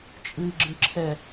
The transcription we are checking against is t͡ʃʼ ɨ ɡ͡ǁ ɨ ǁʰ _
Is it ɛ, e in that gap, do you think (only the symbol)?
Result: ɛ